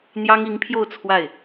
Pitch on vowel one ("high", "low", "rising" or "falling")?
high